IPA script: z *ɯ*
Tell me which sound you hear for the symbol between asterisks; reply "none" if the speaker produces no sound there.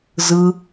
ɯ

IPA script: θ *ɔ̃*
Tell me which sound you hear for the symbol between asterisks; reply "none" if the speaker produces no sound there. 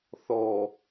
ɔ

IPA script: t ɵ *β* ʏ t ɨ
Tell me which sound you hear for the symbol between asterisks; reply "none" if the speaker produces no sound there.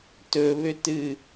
β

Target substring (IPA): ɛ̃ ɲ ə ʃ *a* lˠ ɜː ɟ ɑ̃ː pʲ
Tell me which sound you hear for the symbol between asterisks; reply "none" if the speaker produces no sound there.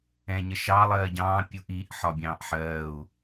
ɑ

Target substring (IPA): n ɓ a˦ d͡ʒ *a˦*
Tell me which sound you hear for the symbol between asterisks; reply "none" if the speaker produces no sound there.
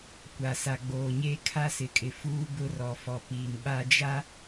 a˦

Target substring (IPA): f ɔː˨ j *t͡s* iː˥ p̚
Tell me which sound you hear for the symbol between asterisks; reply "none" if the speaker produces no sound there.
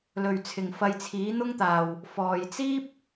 t͡s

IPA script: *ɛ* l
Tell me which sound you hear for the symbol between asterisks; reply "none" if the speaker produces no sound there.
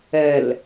ɛ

